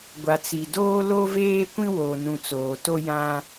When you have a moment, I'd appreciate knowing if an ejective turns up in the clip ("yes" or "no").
no